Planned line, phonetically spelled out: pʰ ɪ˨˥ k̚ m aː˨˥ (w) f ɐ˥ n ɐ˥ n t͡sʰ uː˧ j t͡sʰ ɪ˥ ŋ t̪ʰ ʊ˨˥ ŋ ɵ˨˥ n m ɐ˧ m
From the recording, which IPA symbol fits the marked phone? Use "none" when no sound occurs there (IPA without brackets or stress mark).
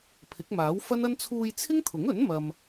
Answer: w